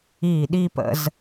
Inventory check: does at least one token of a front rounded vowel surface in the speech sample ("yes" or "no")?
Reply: no